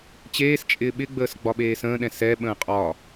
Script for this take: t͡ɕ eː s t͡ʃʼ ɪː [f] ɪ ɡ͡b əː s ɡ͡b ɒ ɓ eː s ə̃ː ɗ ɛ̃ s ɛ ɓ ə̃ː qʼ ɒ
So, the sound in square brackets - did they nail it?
no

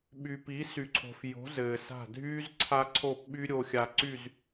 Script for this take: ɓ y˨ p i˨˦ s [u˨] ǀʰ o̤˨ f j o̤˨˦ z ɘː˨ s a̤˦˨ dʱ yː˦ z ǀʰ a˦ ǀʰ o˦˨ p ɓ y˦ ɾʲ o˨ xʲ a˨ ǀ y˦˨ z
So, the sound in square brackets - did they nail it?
no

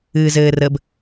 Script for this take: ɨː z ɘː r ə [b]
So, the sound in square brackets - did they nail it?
yes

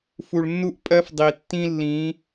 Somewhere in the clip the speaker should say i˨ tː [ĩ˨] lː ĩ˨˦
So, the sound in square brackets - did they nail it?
no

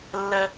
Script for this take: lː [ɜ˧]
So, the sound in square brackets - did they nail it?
yes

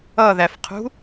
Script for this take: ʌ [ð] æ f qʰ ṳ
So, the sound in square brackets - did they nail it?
yes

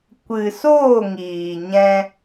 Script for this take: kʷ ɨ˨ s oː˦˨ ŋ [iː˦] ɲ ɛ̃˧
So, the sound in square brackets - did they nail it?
no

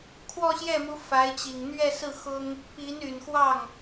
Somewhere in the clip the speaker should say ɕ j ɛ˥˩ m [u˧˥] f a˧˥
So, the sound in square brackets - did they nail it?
yes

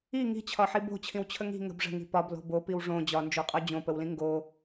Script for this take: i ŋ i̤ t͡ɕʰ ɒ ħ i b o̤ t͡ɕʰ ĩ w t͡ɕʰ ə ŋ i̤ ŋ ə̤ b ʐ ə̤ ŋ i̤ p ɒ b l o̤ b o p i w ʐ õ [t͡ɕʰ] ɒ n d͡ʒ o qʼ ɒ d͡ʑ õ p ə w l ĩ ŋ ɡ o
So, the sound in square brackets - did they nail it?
no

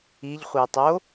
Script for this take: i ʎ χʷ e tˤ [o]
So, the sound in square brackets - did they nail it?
yes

